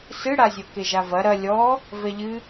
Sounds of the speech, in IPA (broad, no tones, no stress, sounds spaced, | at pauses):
s ɨ ɽ a zʲ o k e ʒ a v ɐ ɾ ɐ lʲ ɔ | v ɛ ʎ ɨ